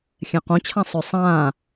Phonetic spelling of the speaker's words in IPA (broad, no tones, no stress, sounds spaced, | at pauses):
xʲ ɛ̃ q õ t͡ɕʰ ã sˤ ø sˤ ãː